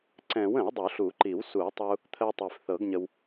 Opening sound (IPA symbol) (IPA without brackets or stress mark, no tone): ǀ